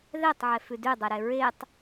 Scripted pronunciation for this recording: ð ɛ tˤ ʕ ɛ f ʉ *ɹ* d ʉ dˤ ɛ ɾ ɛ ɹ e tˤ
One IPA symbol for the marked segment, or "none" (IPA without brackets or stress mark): none